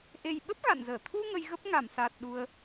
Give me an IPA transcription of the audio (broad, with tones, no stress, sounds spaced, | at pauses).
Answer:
ʔ e˨˩ j ɓ ə˦˥ p̚ ɣ a̰˧˨ n z əː˧˩ t̪ʰ u˧ ŋ ə˧ j ɣ ə˦˥ p̚ ŋ a˧˩ m s aː˨˩ t̚ ɗ u˧ ə̯